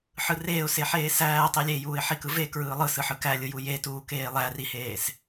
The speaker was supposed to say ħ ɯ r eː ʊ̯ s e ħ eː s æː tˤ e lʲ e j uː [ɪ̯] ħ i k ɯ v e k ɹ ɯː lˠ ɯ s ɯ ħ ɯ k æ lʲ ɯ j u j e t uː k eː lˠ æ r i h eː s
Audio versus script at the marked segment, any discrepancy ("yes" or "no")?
no